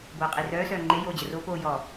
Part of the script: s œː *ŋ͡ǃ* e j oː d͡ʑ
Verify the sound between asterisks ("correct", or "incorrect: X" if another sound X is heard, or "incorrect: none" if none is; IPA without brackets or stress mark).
correct